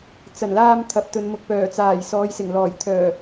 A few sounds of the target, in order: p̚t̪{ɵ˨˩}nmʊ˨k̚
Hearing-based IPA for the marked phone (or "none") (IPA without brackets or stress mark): ɵ˨˧